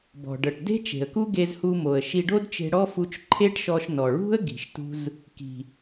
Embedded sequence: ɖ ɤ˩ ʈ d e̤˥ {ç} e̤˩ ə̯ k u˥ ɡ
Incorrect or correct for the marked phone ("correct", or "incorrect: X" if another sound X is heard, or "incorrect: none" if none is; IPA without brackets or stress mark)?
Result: incorrect: t͡ʃ